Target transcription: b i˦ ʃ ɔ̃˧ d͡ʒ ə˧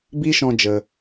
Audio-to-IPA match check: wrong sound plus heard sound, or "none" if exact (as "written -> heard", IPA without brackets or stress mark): none